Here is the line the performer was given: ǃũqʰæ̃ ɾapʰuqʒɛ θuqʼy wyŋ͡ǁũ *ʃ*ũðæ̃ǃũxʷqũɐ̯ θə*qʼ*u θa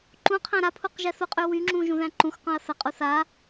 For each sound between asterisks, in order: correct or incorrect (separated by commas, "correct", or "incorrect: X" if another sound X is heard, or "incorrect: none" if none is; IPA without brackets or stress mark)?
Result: incorrect: ʒ, correct